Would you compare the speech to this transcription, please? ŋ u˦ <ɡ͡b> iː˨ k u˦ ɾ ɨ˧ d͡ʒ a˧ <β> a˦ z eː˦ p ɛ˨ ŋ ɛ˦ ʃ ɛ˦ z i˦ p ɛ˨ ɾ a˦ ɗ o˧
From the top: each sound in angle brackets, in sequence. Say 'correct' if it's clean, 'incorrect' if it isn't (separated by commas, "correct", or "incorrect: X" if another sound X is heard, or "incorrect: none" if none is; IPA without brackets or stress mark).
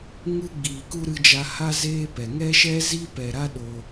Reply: correct, incorrect: h